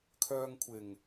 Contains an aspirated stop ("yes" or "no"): yes